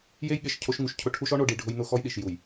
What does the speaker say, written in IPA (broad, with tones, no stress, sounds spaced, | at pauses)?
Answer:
j e˦ j ɠ e˨ ʃ cʰ o˦ ʃ ŋ u˨ ʃ cʰ ʊ˦ ʈʰ u˦ ʃ ɔ˦ ɳ o˨ ɖ i˨ ɖʱ ʊ˦ j n ʊ˦ x ɔ˦ j ɗ i˨ ʃ j u˨ j